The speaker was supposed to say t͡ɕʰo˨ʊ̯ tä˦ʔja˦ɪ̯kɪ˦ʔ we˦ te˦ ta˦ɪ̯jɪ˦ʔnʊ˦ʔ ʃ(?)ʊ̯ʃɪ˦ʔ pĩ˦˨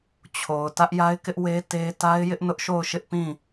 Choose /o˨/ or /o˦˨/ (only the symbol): o˦˨